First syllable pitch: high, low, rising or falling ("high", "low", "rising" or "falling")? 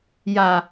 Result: low